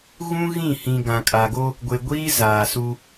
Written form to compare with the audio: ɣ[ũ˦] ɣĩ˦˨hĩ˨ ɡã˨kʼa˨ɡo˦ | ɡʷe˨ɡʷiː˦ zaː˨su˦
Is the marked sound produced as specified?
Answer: yes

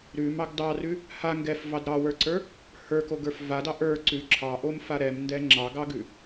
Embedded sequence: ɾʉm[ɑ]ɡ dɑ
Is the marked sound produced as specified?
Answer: yes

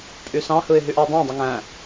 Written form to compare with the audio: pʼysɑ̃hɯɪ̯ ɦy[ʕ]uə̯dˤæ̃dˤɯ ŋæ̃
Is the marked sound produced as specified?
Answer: no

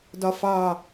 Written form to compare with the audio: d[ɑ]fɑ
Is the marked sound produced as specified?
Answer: no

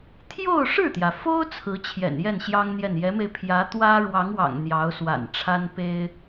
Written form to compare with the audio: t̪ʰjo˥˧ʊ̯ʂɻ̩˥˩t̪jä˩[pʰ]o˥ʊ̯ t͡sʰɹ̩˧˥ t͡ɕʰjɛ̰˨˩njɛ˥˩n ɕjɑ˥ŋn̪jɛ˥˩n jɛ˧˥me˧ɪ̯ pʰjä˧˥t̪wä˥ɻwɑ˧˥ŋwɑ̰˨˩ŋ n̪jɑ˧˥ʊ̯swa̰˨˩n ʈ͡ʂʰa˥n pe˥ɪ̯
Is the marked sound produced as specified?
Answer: no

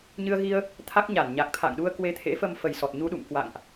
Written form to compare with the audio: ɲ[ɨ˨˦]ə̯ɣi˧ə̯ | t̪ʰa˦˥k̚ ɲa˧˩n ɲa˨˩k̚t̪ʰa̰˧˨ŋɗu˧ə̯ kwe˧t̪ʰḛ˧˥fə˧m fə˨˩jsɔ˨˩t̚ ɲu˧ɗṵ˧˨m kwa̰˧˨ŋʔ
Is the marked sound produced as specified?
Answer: no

